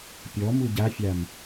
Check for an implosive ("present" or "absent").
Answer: absent